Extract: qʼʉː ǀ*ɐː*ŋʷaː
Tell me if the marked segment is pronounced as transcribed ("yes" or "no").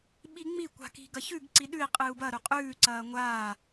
yes